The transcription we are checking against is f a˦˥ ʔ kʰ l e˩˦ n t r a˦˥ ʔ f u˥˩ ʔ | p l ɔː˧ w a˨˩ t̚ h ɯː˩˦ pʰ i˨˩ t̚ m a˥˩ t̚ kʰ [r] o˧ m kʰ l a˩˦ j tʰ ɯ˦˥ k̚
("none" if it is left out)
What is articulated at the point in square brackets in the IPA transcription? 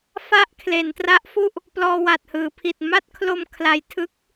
l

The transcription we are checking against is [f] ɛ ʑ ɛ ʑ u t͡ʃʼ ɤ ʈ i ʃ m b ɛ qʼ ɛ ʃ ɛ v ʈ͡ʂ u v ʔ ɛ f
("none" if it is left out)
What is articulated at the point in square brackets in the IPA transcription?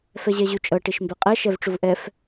f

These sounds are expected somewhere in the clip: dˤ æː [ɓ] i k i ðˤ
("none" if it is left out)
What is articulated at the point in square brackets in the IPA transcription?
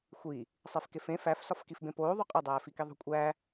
f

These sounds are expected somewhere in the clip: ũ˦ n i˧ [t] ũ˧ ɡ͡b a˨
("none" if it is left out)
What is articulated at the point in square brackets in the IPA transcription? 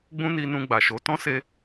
n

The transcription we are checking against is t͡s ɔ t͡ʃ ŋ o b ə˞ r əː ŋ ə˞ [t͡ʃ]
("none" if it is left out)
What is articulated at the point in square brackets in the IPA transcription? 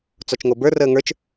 t͡ʃ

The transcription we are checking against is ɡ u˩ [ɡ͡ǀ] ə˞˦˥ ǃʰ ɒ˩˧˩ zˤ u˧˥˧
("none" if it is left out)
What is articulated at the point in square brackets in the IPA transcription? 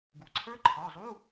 ǀʰ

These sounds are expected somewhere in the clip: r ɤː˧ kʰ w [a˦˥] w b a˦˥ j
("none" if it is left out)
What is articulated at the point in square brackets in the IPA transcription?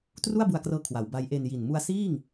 a˩˦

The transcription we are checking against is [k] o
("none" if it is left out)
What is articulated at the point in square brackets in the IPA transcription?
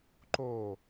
ǃ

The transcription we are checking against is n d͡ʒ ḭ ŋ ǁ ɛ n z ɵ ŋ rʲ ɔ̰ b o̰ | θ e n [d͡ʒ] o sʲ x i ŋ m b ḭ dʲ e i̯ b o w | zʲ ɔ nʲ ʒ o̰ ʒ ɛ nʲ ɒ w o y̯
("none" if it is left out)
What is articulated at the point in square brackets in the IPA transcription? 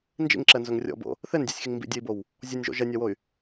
dʲ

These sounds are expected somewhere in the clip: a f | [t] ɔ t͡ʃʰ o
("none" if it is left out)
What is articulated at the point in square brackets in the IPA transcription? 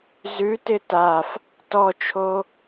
t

